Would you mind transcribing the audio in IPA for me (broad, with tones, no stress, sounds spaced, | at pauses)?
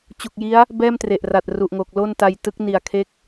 t͡ɕ u˨˩ k̚ j i˦˥ a̯ | b ɛː˥˩ m t r e˨˩ ʔ r a˨˩ t̚ r u˨˩ ʔ ŋ o˨˩ k̚ l o˥˩ n t a˧ j t ɯ˦˥ k̚ n i˨˩ a̯ kʰ e˦˥ k̚